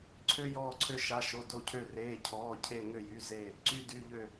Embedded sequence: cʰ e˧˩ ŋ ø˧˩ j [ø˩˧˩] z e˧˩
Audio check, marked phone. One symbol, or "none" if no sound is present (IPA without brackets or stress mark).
y˩˧˩